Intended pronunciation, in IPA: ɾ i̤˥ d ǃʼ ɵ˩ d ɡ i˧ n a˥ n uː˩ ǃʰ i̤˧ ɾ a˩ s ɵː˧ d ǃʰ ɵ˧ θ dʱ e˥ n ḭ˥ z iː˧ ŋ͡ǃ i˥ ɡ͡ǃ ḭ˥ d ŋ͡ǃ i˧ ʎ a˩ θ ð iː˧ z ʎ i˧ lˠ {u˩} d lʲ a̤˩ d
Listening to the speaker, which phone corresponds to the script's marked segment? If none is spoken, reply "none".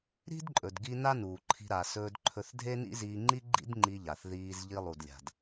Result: u˩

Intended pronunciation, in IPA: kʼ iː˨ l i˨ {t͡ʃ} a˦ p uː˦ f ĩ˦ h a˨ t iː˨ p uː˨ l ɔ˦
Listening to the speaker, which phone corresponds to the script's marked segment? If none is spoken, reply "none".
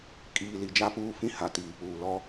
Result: d͡ʒ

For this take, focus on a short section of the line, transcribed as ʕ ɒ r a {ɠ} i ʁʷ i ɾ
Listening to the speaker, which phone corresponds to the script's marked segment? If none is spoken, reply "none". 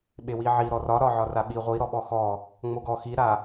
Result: ɓ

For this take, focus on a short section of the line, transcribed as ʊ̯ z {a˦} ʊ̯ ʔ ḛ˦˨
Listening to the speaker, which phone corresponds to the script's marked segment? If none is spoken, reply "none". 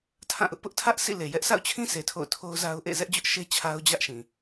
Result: a˦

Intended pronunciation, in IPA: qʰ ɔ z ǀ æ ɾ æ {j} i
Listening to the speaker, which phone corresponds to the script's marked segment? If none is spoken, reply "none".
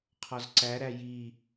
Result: j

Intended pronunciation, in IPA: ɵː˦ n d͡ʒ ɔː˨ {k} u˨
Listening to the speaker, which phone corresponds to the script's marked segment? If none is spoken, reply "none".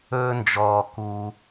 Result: k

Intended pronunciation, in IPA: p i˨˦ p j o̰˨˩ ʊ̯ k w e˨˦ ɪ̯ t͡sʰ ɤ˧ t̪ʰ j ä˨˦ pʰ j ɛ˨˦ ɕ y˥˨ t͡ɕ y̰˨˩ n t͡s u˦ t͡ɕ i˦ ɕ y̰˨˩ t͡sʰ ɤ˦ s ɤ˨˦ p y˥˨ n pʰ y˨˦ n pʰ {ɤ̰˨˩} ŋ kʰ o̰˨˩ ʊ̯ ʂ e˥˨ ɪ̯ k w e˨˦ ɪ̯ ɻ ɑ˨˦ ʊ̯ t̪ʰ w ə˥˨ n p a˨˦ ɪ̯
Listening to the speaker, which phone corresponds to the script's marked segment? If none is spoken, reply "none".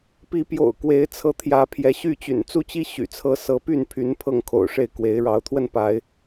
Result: ɤ˥˨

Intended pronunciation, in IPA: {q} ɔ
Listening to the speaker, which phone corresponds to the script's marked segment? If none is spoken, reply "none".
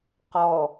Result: q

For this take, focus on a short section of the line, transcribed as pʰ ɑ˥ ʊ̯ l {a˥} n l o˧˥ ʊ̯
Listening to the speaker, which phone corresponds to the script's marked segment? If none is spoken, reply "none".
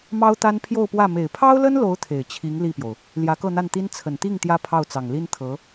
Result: ə˥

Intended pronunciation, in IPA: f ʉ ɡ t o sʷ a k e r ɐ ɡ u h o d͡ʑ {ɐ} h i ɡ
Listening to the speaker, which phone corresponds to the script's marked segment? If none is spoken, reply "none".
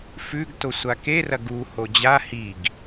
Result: a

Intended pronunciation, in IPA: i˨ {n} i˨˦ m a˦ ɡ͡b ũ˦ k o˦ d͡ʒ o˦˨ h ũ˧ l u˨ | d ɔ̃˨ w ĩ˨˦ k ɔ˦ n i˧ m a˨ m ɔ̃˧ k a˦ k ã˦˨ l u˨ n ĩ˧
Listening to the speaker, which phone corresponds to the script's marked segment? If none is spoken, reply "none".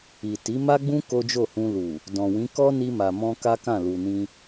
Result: t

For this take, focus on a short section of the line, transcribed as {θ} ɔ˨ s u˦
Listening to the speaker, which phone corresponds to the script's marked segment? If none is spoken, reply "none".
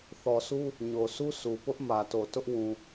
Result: θ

